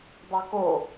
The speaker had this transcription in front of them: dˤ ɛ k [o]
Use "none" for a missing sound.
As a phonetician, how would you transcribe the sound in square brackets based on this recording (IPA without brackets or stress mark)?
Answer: o